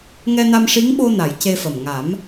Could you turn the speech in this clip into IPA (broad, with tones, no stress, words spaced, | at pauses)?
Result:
ŋɛ˧na˧m ʂi˧˥ŋɓo˧na˨˩˨j ce˧fə˨˩m ŋa˨˩˦m